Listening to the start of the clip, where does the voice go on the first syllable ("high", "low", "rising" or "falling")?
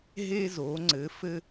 high